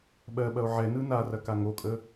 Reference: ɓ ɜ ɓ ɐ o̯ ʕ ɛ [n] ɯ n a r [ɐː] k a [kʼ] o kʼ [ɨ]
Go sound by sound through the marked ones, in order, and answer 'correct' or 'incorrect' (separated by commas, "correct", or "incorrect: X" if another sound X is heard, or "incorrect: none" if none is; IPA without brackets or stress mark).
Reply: correct, incorrect: ɐ, incorrect: ŋ, incorrect: ə